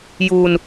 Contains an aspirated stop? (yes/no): no